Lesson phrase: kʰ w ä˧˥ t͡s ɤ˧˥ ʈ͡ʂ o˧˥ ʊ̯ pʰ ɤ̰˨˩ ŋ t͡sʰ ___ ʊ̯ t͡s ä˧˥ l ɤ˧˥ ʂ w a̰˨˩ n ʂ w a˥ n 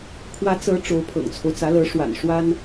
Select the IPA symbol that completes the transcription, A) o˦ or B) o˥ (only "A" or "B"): A